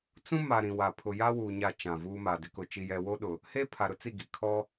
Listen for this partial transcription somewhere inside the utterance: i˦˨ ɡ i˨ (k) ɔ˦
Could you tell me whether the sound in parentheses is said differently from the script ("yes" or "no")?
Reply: yes